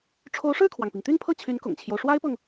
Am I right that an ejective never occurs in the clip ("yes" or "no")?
yes